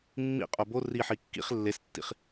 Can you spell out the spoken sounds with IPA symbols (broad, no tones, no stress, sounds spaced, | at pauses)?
mː ḭ qʼ o b o r i ħ i kː ḭ χ lː e s tː ḭ χ